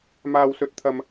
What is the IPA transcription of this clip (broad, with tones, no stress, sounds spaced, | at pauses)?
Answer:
m aː˧ w s ɵ˧ t̚ t̪ʰ ɐ˧ m